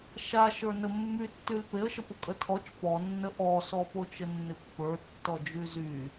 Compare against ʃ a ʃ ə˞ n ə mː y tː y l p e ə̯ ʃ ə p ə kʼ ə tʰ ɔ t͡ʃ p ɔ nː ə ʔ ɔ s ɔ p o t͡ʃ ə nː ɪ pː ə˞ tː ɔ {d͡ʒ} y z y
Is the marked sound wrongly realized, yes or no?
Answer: no